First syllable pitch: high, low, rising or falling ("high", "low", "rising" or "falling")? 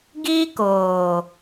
high